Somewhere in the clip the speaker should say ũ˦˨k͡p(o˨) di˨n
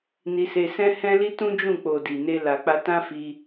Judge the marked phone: correct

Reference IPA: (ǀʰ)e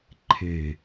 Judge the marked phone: incorrect: ǃʰ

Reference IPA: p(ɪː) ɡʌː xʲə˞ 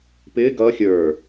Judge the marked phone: correct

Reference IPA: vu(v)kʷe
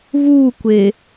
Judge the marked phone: incorrect: none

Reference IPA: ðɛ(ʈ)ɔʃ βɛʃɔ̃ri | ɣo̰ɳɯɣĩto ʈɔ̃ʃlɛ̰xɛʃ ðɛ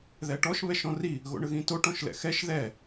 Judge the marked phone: correct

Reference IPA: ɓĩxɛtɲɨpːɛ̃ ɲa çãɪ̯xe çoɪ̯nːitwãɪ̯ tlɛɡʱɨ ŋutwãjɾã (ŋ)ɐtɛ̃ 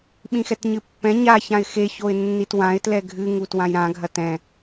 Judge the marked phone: incorrect: ɡʱ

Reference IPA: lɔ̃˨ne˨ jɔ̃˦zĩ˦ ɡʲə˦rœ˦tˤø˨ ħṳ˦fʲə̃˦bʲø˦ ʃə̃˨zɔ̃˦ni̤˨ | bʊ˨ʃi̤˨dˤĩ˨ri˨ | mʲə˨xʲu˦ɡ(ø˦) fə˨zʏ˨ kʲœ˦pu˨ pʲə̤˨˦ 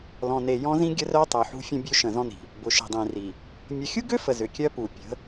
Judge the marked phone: correct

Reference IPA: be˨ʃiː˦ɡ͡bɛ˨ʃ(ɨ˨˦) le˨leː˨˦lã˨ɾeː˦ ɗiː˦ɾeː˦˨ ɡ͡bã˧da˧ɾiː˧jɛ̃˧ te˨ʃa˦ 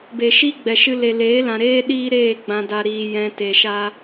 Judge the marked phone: incorrect: ɨ˧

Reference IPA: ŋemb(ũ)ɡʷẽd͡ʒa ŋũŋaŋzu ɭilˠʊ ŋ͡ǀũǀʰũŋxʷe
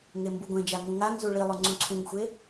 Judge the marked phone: incorrect: u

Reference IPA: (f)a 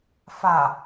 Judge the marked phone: correct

